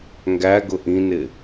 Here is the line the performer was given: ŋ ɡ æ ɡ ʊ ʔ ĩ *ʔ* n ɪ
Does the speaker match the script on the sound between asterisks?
no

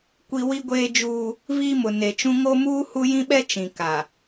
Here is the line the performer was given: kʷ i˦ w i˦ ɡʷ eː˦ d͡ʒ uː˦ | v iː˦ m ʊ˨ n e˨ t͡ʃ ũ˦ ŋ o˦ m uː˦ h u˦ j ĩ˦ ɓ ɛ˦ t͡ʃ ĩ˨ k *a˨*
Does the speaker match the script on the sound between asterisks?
yes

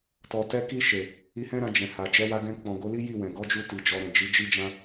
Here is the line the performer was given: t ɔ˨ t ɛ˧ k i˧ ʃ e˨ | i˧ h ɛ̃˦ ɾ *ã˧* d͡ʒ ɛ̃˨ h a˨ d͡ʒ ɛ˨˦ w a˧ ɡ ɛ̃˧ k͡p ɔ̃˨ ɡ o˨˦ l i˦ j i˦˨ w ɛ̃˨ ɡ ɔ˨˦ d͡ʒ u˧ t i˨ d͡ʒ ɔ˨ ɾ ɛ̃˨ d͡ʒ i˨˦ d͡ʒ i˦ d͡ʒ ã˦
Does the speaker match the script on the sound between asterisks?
yes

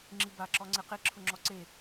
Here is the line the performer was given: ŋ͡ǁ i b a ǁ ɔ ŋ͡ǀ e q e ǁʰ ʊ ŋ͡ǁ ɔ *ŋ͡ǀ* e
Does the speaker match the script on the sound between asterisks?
no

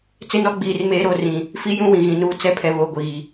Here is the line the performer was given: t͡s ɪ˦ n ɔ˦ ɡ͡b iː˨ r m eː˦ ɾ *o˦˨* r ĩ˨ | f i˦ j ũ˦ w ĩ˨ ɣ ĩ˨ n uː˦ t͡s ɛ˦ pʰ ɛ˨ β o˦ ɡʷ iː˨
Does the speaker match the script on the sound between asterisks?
yes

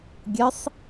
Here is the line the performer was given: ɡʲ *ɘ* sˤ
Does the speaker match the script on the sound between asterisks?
yes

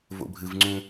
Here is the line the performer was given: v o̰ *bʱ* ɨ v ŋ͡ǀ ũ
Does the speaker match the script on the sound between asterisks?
yes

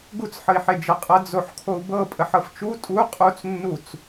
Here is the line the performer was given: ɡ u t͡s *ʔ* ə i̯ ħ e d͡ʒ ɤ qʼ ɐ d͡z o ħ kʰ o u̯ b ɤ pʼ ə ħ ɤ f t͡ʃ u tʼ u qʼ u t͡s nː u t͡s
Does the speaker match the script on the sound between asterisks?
no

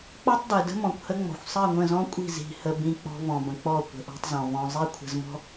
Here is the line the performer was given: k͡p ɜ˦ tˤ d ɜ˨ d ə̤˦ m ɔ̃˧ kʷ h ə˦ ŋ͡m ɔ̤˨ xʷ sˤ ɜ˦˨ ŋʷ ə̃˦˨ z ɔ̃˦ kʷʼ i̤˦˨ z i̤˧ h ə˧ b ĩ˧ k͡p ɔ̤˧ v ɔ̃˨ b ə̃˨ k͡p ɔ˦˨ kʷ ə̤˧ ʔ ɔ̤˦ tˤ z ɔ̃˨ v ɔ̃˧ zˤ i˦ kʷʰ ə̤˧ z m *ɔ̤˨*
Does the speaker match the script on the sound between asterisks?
no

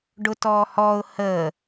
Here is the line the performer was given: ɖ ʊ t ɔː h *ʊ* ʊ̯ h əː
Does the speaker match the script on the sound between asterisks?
no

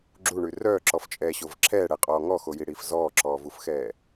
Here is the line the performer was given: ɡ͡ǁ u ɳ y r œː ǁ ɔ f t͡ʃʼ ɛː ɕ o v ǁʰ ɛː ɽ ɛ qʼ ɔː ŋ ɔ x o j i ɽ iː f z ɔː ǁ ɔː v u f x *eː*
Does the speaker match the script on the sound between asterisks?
no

